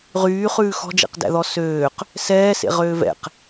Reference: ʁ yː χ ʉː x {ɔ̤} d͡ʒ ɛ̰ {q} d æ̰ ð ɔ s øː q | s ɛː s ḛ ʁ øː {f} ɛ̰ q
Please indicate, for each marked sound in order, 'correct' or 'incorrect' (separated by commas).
correct, correct, incorrect